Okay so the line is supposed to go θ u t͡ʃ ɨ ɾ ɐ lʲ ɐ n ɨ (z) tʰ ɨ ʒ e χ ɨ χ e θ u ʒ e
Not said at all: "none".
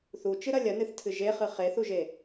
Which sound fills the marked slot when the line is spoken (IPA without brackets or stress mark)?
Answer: θ